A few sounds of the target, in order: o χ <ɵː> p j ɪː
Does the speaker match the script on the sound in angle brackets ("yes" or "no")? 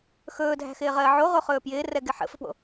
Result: yes